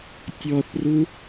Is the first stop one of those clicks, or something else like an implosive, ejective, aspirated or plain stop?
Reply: plain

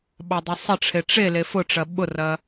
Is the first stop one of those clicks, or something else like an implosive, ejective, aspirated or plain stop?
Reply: implosive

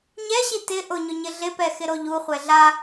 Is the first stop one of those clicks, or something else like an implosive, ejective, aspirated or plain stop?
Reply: plain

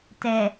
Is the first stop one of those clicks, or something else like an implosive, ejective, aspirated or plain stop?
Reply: plain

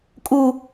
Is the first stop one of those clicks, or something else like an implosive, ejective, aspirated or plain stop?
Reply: ejective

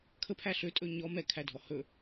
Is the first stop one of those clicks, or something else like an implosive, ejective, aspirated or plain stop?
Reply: aspirated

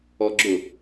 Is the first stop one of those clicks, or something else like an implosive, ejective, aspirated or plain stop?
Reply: click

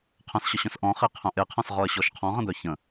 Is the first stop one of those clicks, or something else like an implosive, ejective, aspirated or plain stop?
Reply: aspirated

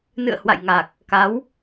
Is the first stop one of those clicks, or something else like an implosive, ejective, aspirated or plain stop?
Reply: plain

